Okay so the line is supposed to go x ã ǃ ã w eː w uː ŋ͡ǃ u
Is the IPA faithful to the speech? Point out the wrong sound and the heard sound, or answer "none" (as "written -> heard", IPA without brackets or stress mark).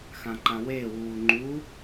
none